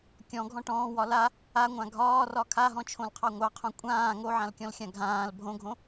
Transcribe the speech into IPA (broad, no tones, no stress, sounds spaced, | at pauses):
kʲ ɔ̃ ɡʱ ɔ̃ ʈ ɔ̃ː w ɒ l a | a ŋʷ ã ɡʱ ɒː r ɒ kʰ a ɦ ɔ̃ t͡ʃʰ õ l qʰ ɑ ŋʷ ɑ qʰ õ kʷʼ ãː ŋ o ʕ ã l kʲ ɔ̃ l xʲ ã ɡʱ ãː l bʱ õ ɡʱ õ